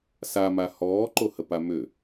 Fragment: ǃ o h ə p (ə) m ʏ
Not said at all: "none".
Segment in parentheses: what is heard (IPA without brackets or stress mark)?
a